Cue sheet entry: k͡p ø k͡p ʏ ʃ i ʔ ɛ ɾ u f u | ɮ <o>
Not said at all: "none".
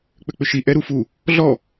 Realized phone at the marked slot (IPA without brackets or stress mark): ɔ